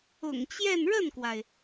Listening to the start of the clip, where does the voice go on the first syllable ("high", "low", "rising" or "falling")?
low